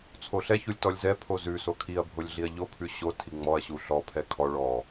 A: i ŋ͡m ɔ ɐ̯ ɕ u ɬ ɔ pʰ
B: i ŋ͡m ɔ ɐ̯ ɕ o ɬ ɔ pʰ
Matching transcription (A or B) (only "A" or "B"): A